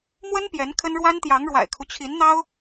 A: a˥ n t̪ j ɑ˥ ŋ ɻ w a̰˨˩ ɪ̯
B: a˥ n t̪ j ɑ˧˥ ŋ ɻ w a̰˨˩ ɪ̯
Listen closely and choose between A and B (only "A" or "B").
B